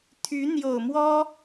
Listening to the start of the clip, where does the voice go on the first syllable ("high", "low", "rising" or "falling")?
rising